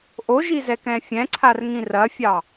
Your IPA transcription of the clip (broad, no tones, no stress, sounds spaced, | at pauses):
ʔ o ʒ i z ɛ k ɛ̃ fʲ ɛ̃ ǀʰ a r ŋ ĩ r ɐ fʲ ɑ